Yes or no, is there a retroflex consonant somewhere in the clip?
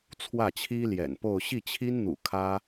no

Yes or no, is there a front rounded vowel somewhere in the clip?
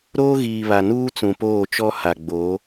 no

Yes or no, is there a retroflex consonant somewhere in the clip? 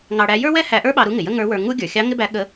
yes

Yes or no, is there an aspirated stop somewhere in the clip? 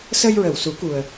no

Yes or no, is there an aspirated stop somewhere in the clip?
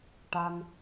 no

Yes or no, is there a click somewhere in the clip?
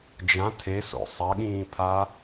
no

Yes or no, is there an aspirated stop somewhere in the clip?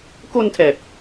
yes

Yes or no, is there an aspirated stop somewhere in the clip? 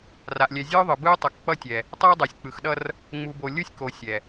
no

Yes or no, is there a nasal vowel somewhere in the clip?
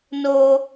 no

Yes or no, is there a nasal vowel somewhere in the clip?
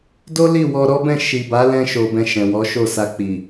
yes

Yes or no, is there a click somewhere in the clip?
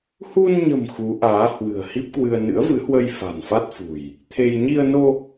no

